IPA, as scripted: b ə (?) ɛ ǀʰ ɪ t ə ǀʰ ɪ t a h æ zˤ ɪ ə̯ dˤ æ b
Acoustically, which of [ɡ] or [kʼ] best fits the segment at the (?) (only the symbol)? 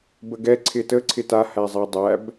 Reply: ɡ